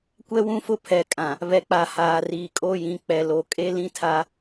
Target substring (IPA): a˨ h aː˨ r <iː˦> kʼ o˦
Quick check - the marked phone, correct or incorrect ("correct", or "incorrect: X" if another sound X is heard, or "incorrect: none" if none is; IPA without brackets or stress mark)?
incorrect: iː˨